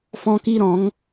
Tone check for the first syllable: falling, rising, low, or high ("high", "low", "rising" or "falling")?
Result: high